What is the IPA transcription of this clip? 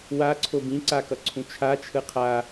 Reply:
waǀʰob ĩǀakʌǀʰũ t͡ʃʰat͡ʃʰɯ qʰa

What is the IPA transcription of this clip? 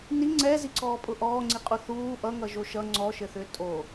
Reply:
ni ŋ͡ǀɛziǀɔːpʼʊ ʔɔːŋ͡ǀiqʼu θuː ʔʌŋʌʒo ʃʌ ŋ͡ǀɔʃɘθʏː tʼo

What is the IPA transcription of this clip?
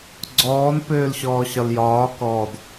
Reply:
ɡ͡ǀɔːn pøːlɕɔːɕɒljɒː kɔd

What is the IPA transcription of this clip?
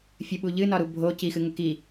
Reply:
fʲəɓu ʎɨnɒɾu bʱo cixɨŋə ki

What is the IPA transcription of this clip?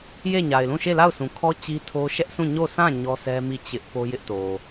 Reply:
je˦˨ɲa˨ɪ̯lũ˦˨ ʃe˦˨la˦˨ʊ̯sũ˨kʰɔ˦ t͡ɕi˦tʰo˦ ʃɛ˦ʔsũ˦˨ ɲo˦˨sʰã˦˨ ɲɔ˦sʰɛ˦mi˦˨ t͡ɕɪ˦ʔ po˦jɪ˦ʔto˨

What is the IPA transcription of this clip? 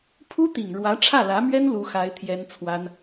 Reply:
pʰu˥t̪i˨˩ŋ ɻwä˧˥ʈ͡ʂʰä˥˩lä˧˥mɥɛ˥n lu˥xa˥ɪ̯t̪ʰjɛ˥n t͡sʰwa˥n

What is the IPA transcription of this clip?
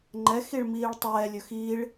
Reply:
ŋ͡ǃɛxiɭmiːɭ tˤɛːlʲɵ xiɭ

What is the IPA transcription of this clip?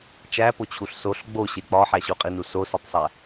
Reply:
t͡ʃæpot͡ɕʰuɬ soɬ ɡ͡boɕe k͡pɒħæ ɕuqʼinu sositˤsˤæ

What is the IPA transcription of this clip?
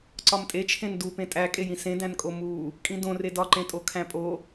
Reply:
ǀɒmtʼet͡ʃʰẽn dupẽ tʼækʼejĩ sẽdæ̃nkʼo mu | kʼĩdõ redɒǃẽtʼo kʰæ̃pʼo

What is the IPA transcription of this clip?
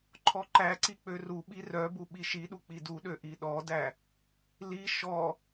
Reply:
ǃʰɔǃæǀi k͡pøruɓi rœbu ɓiʃiɗu k͡piduɗø ʔiɗɔdæ | li ʃɔ

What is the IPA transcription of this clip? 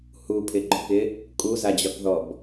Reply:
hupʰɪɡ͡ǃɔkɪ | kʼuzad͡ʑɒkðɔb

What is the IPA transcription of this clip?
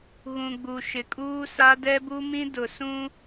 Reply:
ɣũ˨ɡ͡bu˨ ʃɪ˨kʼuː˦sa˦ dɛ˦bu˦mĩ˦ dʊ˨ sũ˦

